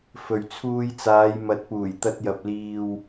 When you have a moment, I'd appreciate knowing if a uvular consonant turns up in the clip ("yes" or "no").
no